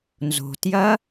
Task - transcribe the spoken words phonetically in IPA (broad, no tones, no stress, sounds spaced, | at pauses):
n z o̤ t j ɐ